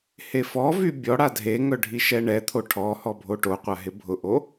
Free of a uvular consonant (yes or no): no